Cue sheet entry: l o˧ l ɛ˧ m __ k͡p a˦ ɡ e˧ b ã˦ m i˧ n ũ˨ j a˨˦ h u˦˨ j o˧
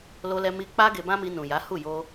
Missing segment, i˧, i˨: i˧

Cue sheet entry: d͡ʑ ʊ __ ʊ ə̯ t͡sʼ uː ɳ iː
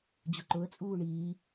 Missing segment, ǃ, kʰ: ǃ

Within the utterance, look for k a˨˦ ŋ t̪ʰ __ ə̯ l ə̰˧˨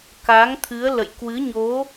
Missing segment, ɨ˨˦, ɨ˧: ɨ˨˦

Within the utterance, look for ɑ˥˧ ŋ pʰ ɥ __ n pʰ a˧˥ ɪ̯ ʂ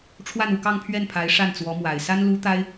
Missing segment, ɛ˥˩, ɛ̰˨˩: ɛ˥˩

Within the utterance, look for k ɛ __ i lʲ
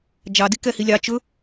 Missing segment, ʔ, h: h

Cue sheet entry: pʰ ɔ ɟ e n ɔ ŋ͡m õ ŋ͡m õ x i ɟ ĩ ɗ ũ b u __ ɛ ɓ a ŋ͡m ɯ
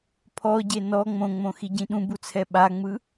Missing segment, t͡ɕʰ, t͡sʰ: t͡sʰ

